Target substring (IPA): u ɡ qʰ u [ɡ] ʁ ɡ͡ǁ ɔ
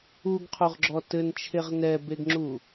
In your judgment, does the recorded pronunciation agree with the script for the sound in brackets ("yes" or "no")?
no